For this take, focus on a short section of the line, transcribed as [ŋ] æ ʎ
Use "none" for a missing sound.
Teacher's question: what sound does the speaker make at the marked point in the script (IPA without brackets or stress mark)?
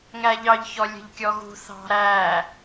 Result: ŋ